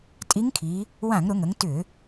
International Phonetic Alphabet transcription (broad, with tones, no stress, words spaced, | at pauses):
tʼi˧˥ŋkʰi˩˧ | wã˧˩˧ŋɾʊ˩˧ŋə˩˧ŋ tʏ˧˩˧